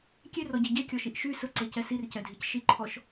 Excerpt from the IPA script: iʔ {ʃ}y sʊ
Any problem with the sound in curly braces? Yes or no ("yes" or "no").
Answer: no